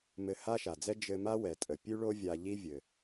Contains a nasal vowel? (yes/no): no